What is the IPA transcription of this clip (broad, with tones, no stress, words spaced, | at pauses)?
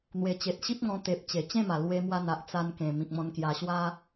n̪we˨˩t͡ɕe˨t̚ɕi˦p̚ŋɔ̃˧ t̪e˨p̚t͡ɕe˨˩ t͡ɕẽ˥˧ma˨˩ lwe˧mwa˧n̪a˨ʔ t͡sa˧nkẽ˨˩ mĩ˨k̚mɔ̃˧nkja˧ɕwa˦